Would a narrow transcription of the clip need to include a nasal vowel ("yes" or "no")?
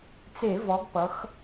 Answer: no